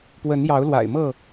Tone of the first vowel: rising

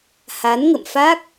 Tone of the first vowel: rising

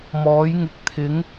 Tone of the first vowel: rising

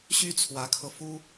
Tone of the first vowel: high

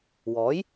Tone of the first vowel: rising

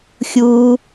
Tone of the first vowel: low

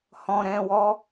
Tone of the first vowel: low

